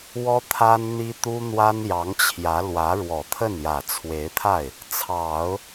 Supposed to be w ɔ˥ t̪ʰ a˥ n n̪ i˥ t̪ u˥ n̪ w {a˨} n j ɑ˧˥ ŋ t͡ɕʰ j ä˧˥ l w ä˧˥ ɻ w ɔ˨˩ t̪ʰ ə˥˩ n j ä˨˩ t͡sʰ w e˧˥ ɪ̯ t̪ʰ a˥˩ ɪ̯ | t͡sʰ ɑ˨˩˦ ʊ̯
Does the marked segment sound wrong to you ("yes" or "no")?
yes